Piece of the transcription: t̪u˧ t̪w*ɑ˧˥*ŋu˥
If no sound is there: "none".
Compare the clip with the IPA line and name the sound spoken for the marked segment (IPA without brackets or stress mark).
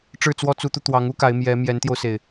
ɑ˧˥